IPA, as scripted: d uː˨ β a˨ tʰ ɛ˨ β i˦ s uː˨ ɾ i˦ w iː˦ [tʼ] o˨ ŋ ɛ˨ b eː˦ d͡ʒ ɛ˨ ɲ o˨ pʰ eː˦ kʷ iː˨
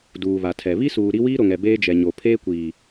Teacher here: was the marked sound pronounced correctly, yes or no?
no